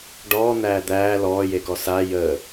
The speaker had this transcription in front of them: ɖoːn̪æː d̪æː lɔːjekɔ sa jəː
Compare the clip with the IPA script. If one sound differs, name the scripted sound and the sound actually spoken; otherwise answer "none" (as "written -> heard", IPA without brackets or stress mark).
oː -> ɔː